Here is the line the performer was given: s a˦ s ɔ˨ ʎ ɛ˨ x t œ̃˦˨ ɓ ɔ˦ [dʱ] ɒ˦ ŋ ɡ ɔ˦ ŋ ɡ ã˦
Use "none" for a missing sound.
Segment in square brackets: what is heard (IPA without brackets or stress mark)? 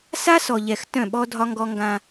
dʱ